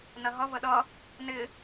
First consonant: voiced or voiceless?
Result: voiced